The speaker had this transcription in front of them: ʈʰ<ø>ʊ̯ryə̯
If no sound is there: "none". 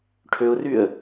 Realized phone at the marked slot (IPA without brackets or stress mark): ø